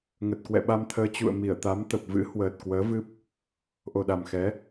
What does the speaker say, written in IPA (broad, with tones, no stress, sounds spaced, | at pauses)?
ŋ ə˨˩ t̚ k w ɛ̰˧˨ ɓ a˧ m t̪ʰ əː˧ t͡ɕ ṵ˧˨ ə̯ m i˧˩ ə̯ t̪ a˨˦ m t̪ ə˨˩ p̚ v ɨ̰˧˥ h w əː˨˩ t̚ k w əː˨˦ v ɨ˦˥ p̚ | ʔ o˨˩ ɗ a˨˩ m x ɛ˨˦